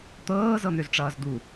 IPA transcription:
t̪ɤːzɤn̪øzʈ͡ʂʌːz d̪u

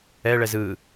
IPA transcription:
ɛ ɭɛzɯ

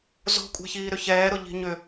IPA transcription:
zo̤kʷʼɛ̤çiː ɾʏçɛːɾʊ ʎi̤ɲʏ

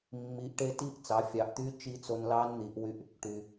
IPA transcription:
mːi˩˧ʔʈe˧ti˧˥ʔ t͡sɑ˩˧fʲɑ˩˧ʔt̪y˧˥ t͡ʃi˧˥t͡so˧n lɑ˧˥nn̪i˩˧ʔwy˧ʔ | ʈy˩

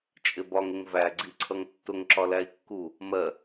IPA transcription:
t͡ʃʼɪbɒŋɪŋ væɡ͡ǀiǀʰʌŋ tːʊŋǁɒ læi̯kːu | mɜ

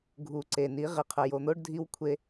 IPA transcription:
ɡʱu˨ǀe˨ni˨˦ ʁe˨qʰə˨jo˨n̪o˦ɖ dʱi˦wkʷʰe˦

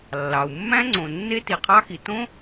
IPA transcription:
lːɑ˩u̯mːæ̃˥ŋ͡ǀõ˩ nːe˥ti˩qʰɑ˥xi˩ tõ˥

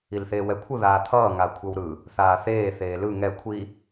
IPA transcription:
ilθeːwɛkʷʰɯ ðaːt̪ʰʌː ŋakʷʰʌwɾɯ | θaːθeː θeːlɯ ŋɛ kʷʰi

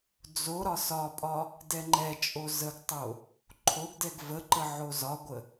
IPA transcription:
d͡zo ɾɒsɒpʼɒ | dɛŋ͡ǃɛt͡ʃʼo zəɡtˤo | ǃʰoɡdɛɡ vəǃə ʕozɒɡʷə

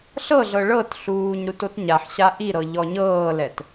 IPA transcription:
ɬɤɮɤ ɭɤtɬuːɲ ɾutotɲaħɕa ʔiɾɤ ʎɔɲɤːlɛt

